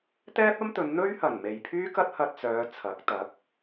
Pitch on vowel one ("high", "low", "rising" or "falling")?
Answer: high